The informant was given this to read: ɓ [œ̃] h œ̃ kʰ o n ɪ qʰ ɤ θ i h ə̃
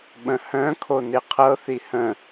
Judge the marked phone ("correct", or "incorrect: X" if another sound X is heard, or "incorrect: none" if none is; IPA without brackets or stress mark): incorrect: ə̃